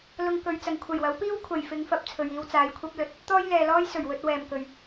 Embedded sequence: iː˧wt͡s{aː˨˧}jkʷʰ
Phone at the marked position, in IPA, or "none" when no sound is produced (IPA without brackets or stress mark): aː˨˧